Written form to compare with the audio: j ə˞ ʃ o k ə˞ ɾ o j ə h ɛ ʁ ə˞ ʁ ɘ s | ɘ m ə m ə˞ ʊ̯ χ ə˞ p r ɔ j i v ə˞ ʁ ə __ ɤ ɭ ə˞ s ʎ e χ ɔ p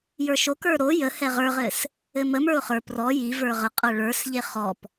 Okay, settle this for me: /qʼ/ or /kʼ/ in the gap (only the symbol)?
qʼ